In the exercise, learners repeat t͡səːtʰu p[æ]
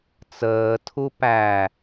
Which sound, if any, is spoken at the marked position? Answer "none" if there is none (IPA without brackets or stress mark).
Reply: æ